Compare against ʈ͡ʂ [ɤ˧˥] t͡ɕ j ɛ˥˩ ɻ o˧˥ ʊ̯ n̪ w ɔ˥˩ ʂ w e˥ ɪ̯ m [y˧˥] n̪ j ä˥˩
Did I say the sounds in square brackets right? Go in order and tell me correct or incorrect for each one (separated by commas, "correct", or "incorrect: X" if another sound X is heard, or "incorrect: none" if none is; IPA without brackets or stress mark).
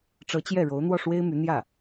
correct, correct